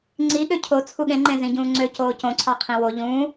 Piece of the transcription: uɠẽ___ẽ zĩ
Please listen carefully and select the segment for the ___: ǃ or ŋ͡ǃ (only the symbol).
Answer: ŋ͡ǃ